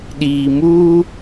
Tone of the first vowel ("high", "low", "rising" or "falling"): low